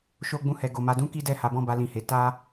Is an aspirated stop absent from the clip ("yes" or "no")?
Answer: yes